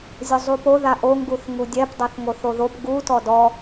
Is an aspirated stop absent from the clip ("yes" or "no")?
yes